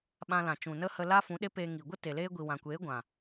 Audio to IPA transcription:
ɓã˧lã˨t͡ʃũ˨nə˦ hə˧la˦ fũ˨˦ɗe˦peː˧ŋi˨ ɡʷə˦ te˨leː˦ ɡʷi˨wã˨kʷeː˨˦ ɡʷã˨

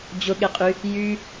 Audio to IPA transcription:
d͡ʑʊɠeqʼy | jy

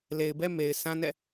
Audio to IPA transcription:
le˨ɪ̯bɛ˦ me˨ɪ̯sʰã˦nɛ̰˦˨

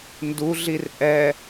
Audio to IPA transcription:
nduɮir ʔɛ

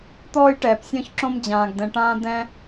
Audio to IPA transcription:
t̪ɔː˥jʈɛː˨p sʲɔ̃˥çǁõ˥m d͡ʑãː˨ɡdɛ̃˨ʈãː˥ d̪ɛ̃˥

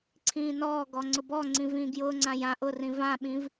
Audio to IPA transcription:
ǀʰĩːnɔːɡɔ ŋ͡ǀʊbɔŋ͡ǀĩ vĩːɡjʊːŋ͡ǀã jã ʔʊrĩ vãɓĩv

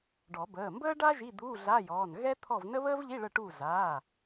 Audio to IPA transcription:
ɖɔ˨˩˦bəː˩˧˩ mbəː˥ɖa˥ ʒi˧˥˧d̪uː˧˥˧ɮa˧˥˧jɔː˩˧˩n ɣɛ˥t̪ʰɔ˦˨vnə˥ βəː˥vʎi˧˥˧ ɭə˦˨ʈu˦˨ za˩˧˩

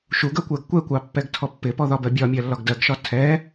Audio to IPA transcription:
ʃuɡɜkʷɜɡ kʷɛkʷɑpːɛɡtʰɔ pːɪpɔðɒbɜ bʲɒmʲɜlːɒɡ dɜɡʃɒ tʰɛ

